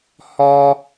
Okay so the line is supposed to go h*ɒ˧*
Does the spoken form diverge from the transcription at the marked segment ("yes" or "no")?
no